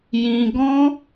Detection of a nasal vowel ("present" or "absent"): present